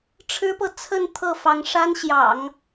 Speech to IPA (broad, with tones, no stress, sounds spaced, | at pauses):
ʈ͡ʂʰ ɻ̩˥ p ɤ˨ t͡sʰ ə˥˧ n t̪ʰ ɤ˥˩ f ɑ˧˥ ŋ ʂ a˥ n ɕ j ɑ̰˨˩˦ ŋ